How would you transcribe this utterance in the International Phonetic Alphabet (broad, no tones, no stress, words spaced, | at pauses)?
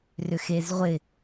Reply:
rʏxezʁʷɪ